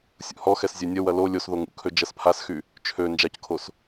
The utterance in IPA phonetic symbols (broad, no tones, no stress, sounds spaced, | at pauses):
sʲ ṵ h ɔ x ɛ s zʲ ø nʲ ə w ɐ l o lʲ o s ð o ŋ ṵ kʰ ø d͡ʒ ɐ s pʰ a s x y | t͡ʃʰ ø n d͡ʒ a c kʰ o s